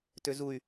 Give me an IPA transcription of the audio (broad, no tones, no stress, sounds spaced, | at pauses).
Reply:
t ø z u y̯